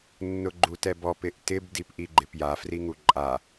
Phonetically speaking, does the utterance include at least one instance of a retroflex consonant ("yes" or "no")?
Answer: no